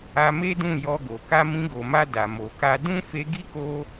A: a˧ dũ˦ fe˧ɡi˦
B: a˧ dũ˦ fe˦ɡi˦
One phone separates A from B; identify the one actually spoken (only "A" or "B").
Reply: A